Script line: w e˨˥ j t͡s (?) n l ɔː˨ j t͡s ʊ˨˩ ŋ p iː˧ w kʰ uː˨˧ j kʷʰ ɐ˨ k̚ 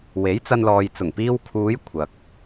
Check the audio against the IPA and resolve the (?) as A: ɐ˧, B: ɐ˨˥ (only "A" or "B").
A